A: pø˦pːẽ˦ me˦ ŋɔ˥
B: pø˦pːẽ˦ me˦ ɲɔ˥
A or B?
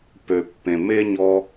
B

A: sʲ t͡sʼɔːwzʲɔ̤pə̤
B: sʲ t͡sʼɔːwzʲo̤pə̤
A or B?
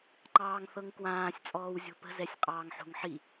B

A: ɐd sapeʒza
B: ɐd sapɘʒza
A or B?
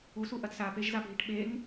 A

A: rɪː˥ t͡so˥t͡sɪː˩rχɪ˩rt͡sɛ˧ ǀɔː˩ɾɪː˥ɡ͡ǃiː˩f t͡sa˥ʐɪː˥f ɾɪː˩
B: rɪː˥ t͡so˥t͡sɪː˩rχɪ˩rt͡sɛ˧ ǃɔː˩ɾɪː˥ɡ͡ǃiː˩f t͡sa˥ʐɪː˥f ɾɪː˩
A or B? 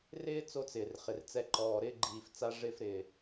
B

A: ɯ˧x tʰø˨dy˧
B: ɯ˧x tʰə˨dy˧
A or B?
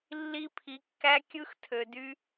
A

